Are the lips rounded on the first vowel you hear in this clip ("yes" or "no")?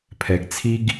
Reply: no